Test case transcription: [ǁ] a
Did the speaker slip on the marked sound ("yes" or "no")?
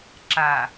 no